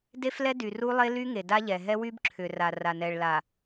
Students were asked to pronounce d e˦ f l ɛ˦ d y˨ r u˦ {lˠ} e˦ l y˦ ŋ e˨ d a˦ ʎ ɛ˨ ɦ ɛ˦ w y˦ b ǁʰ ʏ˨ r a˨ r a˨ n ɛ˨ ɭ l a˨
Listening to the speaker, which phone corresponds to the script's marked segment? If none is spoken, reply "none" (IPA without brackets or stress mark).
lˠ